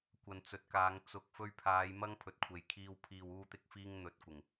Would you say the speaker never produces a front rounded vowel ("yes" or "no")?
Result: yes